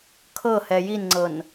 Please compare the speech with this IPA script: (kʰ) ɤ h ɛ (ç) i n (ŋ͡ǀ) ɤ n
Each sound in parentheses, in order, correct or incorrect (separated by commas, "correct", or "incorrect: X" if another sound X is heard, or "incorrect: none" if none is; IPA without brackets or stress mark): correct, incorrect: j, correct